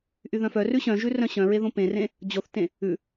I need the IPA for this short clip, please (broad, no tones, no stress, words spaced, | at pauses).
ʔyðœ̃fœ rʉɕœ̃ʒʉ rœ̃ɕœ̃ɹeðõ pẽrẽ | d͡ʑoθtẽ | ʉ